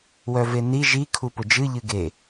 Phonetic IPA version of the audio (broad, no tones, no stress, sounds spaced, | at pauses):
w œ v e n i ʒ i kʰ u p ʊ d͡ʒ ɨ ʎ ɨ ɡ e